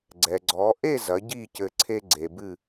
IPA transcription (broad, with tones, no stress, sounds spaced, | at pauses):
ɡ͡ǀ ɛ˩ ɡ͡ǀ ɔ˩˧ ʔ e˥˨ z ɐ˩˧ ɟ i˥˨ c ɘ˧˩ ǀʰ e˦ ɡ͡ǀ e˩ b ɨ˧˩